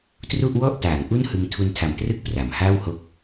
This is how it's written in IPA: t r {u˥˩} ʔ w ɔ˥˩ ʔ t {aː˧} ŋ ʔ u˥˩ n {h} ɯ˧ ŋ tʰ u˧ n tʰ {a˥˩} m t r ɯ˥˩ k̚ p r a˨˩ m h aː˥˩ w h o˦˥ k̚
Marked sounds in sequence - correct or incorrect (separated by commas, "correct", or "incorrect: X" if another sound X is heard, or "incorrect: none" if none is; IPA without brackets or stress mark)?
correct, incorrect: aː˩˦, correct, incorrect: a˨˩